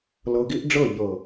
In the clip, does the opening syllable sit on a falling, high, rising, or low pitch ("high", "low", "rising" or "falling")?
low